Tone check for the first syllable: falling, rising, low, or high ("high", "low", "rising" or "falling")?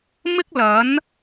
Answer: high